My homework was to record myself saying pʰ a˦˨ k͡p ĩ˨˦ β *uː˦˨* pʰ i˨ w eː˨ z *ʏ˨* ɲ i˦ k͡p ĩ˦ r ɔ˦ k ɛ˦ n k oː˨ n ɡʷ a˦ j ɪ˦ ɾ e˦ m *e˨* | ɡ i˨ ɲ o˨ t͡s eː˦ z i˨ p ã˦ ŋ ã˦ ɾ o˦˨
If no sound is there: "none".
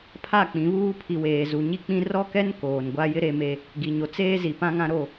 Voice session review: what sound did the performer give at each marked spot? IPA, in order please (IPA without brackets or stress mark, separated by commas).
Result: uː˦, u˨, e˦